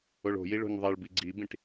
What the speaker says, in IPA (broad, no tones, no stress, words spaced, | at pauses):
oɭo̤ji ɭo̤ɲðˤeɭbi ɡ͡ǀibĩʈ